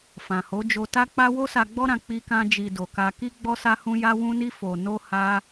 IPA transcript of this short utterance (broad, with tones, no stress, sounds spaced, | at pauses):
f ã˨ h o˨˦ d͡ʒ o˧ t a˦ k͡p a˦ w o˦ s a˧ ɡ͡b ɔ˦ ɾ ã˧ k͡p i˦ k ã˦ d͡ʒ i˧ d o˨ k a˧ k i˦ ɡ͡b ɔ˦ s a˦ h ũ˦ j a˦ w ũ˦ n i˦ f o˧ n o˦ h a˦